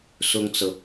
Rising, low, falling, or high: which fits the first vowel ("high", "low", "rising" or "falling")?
high